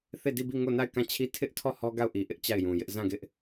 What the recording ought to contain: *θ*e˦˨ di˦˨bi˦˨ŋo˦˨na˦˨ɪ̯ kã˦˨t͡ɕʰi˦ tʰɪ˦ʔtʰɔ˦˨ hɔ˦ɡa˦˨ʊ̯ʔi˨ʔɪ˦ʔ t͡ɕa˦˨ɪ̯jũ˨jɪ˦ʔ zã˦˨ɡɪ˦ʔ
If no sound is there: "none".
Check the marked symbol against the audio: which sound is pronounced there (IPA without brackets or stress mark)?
θ